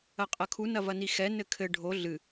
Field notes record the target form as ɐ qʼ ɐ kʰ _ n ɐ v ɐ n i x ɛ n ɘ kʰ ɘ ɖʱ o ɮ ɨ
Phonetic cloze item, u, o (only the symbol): u